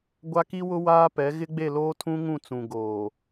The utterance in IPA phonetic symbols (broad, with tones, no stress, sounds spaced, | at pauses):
ɡʷ a˦ k i˦ w ʊ˦ w aː˦ p ɛ˨˦ ɣ ɪ˦ ɡ͡b e˦˨ l oː˦ tʰ ũ˦ ŋ ũ˦˨ t͡s ũ˨ ɡ oː˨